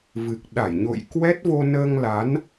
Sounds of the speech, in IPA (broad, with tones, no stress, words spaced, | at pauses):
vɨ˨˩k̚ ɗa˧˩jɲo̰˧˨j kwɛ˦˥t̚vo˧nəː˧ŋla˨˦n